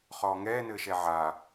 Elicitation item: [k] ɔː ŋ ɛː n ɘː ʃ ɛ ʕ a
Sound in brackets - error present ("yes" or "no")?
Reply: yes